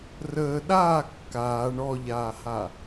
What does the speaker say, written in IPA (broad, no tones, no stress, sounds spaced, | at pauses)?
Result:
r əː ɗ aː kː aː ɳ ɔ ʎ aː h a